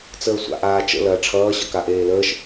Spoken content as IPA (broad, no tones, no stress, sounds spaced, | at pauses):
t͡s əː sʷ a̰ ʔ aː t͡ʃ ə̰ l ɐː ʈ͡ʂʰ ʌː ɕ ʌ k a ʔ eː l əː ʃ